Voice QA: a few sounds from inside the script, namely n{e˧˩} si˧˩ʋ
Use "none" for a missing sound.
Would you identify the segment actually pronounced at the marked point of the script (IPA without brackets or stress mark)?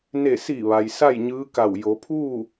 e˧˩